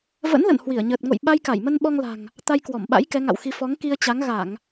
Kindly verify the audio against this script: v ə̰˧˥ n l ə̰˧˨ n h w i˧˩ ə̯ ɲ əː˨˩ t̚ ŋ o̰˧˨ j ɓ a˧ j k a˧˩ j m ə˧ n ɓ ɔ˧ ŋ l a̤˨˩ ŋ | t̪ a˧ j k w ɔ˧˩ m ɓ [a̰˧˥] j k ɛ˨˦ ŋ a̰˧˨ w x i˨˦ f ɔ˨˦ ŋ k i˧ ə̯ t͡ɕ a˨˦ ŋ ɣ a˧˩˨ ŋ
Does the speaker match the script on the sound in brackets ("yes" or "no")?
yes